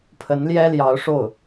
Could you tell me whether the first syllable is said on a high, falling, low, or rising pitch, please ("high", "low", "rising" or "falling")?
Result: rising